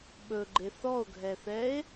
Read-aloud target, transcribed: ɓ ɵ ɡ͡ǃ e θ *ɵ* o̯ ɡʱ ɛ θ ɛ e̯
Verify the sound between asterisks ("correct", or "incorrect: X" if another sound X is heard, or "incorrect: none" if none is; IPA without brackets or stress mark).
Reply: incorrect: ɔ